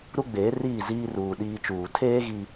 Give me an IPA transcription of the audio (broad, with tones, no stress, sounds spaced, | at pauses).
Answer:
ɾ u˦ ɡ͡b eː˨˦ r iː˦˨ z iː˦ r uː˨ ɗ iː˦ t͡ʃ uː˨ tʰ eː˦ ɣ i˦